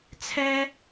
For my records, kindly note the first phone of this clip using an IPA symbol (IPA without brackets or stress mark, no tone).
t͡sʰ